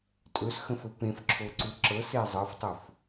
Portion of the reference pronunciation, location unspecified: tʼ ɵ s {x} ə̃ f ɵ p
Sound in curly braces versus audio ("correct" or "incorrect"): correct